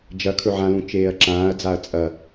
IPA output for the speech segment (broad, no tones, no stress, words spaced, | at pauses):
d͡ʒɐ kʰɵʕãlũ t͡ʃeːɐ̯ǁãːɐ̯d͡zaɐ̯ t͡sʼɐ